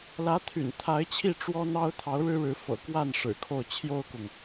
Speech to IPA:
l ä˧˥ t̪ʰ y̰˨˩ n t̪ʰ a˧˥ ɪ̯ t͡ɕʰ i˥˩ ʈ͡ʂ w ɔ˥ n̪ ɑ˥ ʊ̯ t̪ʰ ɑ˧˥ ʊ̯ ɻ ɻ̩˥ ɻ ɻ̩˧˥ f ɤ̰˨˩ k w a˥˩ n ʂ ɻ̩˨˩ kʰ o˥˩ ʊ̯ t͡ɕʰ j o˥ ʊ̯ k ʊ˨ ŋ

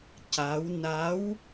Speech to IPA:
c a˧˥ w n a˧˥ w

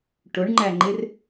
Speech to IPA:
ʈ ʊ ɳ ŋ͡ǃ æ ŋ͡ǃ ɪ r

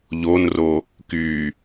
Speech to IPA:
ʎ o n r o | k y

